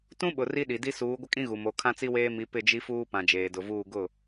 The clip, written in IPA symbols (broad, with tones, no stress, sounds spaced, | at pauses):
t ũ˦ ɓ ʊ˨ r i˦ ɗ i˨ d i˦ s uː˨˦ ɡʷ ɪ˦ kʼ ĩ˦ ɣ u˨ m o˨˦ kʰ ã˦ t͡s i˦ w eː˦ m i˨˦ p ɪ˦˨ d͡ʒ i˦ f uː˦ p ã˨ d͡ʒ eː˨ d ʊ˨ v uː˦˨ ɡ ʊ˦˨